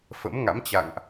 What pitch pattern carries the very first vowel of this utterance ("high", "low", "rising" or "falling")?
rising